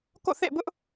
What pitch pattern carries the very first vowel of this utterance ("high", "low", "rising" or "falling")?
falling